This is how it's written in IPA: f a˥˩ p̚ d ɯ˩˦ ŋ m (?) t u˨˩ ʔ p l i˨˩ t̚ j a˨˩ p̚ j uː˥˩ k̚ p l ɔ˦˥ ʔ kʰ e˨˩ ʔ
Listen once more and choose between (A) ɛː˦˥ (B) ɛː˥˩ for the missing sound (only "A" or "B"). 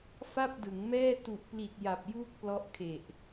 B